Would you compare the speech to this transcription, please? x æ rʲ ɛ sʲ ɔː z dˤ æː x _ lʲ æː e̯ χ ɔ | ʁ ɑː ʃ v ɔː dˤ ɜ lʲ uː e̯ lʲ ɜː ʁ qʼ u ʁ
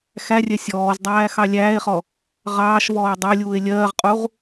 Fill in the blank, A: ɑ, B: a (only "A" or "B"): A